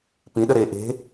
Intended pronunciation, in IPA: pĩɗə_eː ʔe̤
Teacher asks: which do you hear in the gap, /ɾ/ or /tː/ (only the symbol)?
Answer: ɾ